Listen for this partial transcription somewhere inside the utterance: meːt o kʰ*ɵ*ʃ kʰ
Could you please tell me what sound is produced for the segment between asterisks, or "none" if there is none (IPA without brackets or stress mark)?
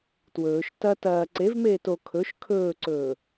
ɵ